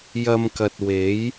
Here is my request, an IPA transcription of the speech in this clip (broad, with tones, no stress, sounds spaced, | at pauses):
j ɐ˧ m k ɐ˨ t̚ w e˨˥ j